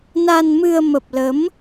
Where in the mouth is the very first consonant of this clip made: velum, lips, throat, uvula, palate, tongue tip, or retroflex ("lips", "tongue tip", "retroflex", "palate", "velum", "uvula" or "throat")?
tongue tip